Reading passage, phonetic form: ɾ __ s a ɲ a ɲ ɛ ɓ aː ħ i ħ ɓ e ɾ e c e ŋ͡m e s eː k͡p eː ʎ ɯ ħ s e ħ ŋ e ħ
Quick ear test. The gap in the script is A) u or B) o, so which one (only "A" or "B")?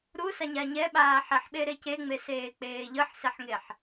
A